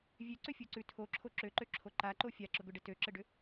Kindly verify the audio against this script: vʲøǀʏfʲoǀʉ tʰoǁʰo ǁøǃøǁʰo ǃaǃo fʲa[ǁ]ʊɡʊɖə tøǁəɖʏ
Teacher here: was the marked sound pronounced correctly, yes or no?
yes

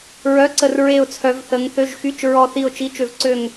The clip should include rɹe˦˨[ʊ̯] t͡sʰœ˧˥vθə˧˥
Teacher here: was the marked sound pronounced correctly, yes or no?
yes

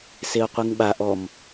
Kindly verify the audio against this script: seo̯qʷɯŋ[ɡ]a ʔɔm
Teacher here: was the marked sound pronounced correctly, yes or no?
no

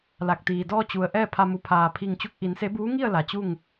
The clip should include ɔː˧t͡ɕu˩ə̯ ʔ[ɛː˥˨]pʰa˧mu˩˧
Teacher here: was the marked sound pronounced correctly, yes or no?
yes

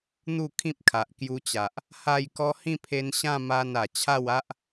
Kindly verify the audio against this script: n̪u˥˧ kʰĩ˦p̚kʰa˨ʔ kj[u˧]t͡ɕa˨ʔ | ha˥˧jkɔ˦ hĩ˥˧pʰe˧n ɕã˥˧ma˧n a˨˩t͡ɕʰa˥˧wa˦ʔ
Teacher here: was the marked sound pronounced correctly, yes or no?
yes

